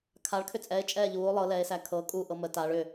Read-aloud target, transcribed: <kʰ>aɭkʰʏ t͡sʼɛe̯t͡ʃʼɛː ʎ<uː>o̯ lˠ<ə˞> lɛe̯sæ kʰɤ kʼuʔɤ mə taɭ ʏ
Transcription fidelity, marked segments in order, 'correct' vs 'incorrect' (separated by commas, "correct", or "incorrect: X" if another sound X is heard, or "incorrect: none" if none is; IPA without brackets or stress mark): correct, correct, incorrect: ɤ